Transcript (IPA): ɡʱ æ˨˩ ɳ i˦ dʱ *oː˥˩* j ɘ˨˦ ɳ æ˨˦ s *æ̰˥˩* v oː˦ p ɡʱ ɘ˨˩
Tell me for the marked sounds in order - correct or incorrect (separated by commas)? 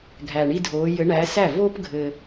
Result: incorrect, incorrect